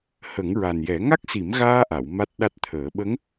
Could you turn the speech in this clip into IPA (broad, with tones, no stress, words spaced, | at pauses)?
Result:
hə˨˩˦ŋɹa˨˩njɛ˨˩˦ ŋa˦˥k̚si˨˩˦mɣaː˧ʔa˨˩˨w ma˦˥t̚ɗa˦˥t̚t̪ʰəː˨˩˦ ɓə˧˥ŋ